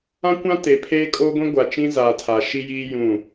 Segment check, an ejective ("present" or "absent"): present